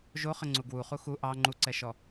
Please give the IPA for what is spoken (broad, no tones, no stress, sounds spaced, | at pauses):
ʒ o χ ə ŋ͡ǀ u ɡ w u χ u x u ʔ ɑ ŋ͡ǃ u ǀ ɛ ʃ ɔ